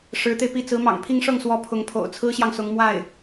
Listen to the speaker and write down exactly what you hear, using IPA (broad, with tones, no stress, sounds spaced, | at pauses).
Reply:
ʂ ɻ̩˧˥ t̪ e˧ ɪ̯ p i˥˩ t͡s ɹ̩˧˥ m ɑ̰˨˩ ŋ pʰ i˥˧ ŋ ʂ ɤ˥˩ ŋ s w ɔ˧˥ pʰ ʊ˧˥ ŋ pʰ o̰˨˩ ʊ̯ t͡sʰ ɹ̩˥ ɕ j ɑ˨ ŋ s ʊ˧˥ ŋ m w a˥˩ ɪ̯